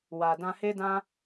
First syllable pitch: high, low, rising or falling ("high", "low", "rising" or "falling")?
low